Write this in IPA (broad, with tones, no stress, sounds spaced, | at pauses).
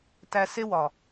t æ˧ s e˦ w ɒ˨